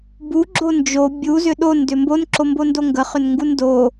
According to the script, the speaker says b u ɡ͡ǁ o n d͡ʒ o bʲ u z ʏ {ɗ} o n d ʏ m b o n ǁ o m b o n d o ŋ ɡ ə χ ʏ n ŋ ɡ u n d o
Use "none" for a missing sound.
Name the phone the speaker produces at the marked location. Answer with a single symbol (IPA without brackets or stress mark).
ɗ